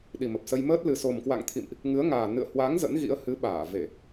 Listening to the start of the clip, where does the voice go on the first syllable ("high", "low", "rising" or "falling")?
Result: low